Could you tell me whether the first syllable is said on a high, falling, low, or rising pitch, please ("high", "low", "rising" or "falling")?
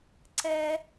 high